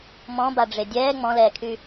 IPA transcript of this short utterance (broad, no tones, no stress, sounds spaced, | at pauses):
m ɔ̃ b a ɖ͡ʐ e dʲ ɛː ŋ͡m ɔ̃ l ɛː kʰ y